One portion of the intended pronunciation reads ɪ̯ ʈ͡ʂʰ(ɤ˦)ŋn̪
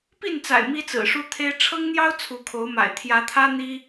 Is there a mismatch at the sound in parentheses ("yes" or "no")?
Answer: no